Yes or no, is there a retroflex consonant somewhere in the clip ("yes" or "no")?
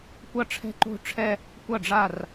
yes